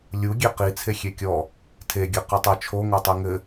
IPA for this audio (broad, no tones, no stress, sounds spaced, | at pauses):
lʲ u ɡʲ e q i t͡sʰ e xʲ e kʲ ɔ | tʰ e ɡʲ ɘ q ɨ tˤ ɘ t͡ʃʰ o ŋ o tˤ i ŋ ɘ